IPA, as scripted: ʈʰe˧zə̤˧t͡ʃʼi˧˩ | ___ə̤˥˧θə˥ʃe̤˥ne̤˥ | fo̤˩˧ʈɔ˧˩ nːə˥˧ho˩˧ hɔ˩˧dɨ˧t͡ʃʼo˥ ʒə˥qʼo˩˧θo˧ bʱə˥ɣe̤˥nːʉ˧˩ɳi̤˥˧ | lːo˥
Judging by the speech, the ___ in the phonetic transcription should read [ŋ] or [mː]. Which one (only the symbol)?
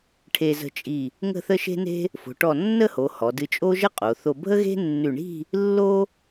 ŋ